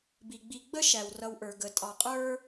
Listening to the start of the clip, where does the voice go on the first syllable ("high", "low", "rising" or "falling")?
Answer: low